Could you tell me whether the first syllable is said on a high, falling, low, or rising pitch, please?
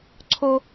high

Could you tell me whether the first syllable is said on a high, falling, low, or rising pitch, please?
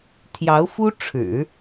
rising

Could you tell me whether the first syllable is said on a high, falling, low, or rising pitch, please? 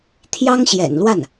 high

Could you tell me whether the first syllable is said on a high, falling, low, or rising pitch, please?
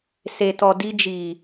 low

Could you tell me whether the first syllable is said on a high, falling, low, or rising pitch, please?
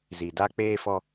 low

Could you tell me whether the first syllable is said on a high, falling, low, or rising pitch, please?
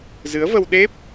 rising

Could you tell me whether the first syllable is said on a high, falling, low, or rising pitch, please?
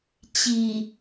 low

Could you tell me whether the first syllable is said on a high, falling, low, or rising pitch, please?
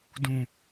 low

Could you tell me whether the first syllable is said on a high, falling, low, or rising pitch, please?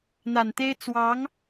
low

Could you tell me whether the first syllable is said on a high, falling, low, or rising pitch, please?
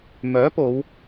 rising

